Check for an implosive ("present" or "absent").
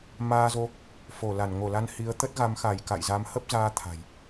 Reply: absent